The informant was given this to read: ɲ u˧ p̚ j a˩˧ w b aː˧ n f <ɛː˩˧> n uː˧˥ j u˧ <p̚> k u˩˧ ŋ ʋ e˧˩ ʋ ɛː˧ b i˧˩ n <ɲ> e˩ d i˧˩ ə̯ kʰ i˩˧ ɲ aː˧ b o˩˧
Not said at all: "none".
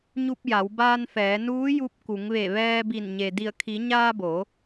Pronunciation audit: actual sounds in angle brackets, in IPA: ɛː˩˧, p̚, ɲ

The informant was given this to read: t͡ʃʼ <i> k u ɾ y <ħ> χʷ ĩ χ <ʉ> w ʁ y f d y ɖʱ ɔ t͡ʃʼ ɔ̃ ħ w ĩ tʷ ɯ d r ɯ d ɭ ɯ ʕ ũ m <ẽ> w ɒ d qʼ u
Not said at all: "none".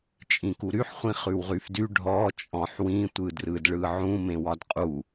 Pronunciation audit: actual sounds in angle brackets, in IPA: ĩ, ħ, ʉ, ẽ

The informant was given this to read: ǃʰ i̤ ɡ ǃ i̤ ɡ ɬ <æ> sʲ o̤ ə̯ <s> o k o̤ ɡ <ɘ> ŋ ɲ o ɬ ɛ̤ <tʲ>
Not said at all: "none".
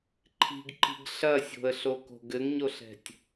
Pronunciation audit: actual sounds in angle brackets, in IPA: ɐ, ɬ, ɘ, tʲ

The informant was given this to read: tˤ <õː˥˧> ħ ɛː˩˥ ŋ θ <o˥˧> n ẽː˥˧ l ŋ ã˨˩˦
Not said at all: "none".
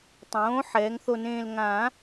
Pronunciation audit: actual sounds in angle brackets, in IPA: õː˩˥, o˥˧

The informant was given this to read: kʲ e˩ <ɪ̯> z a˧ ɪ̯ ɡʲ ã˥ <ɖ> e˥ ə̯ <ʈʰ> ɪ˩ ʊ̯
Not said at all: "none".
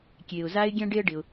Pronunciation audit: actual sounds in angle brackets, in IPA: ʊ̯, ɖ, ɖ

